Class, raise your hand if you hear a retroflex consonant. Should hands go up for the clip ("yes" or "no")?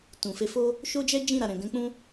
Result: no